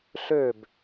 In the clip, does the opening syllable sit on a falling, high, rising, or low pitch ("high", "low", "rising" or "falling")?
falling